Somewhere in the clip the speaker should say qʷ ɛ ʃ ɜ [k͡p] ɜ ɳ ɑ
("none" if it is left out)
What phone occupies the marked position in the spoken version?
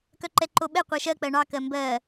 k͡p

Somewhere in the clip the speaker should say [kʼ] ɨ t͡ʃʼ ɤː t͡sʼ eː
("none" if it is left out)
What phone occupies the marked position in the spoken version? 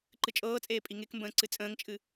ǃ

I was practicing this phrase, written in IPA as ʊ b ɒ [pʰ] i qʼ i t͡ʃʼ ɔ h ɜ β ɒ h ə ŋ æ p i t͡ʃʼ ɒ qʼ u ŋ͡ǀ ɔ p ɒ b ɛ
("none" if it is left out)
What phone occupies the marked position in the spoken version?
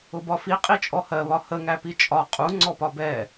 f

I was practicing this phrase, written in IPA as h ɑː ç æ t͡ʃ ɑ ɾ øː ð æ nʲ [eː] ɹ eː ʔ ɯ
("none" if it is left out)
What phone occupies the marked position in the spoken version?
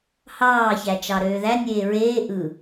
eː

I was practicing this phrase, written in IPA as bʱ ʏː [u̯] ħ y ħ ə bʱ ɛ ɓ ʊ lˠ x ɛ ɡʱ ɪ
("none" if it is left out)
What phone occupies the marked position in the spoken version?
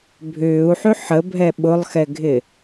u̯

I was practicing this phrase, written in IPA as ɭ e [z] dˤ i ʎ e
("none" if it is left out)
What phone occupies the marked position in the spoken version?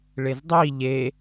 z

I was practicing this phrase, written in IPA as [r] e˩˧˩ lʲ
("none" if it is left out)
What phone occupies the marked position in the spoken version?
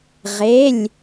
ʁ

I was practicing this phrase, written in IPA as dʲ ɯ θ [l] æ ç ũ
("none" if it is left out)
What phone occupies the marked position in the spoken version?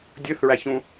ɹ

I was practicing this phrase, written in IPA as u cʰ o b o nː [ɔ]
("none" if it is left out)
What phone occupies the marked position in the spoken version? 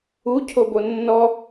ɔ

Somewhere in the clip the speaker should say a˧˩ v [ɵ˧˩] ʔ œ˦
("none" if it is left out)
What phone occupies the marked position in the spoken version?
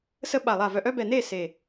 œ˧˩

